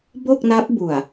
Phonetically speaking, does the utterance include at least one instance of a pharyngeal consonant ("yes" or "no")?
no